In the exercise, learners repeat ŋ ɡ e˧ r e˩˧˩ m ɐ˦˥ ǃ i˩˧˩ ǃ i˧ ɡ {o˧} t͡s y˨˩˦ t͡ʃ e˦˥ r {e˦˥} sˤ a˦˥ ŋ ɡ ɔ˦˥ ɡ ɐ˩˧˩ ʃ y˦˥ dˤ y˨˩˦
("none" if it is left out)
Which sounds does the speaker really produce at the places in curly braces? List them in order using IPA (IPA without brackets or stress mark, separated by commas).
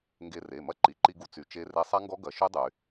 u˧, e˦˥